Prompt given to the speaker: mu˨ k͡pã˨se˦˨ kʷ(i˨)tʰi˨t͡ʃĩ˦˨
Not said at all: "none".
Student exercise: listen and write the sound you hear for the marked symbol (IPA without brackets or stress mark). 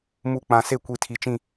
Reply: i˨